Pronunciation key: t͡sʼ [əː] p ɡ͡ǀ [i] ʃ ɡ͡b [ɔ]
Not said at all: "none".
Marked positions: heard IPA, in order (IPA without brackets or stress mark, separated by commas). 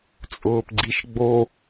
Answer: ʊː, i, o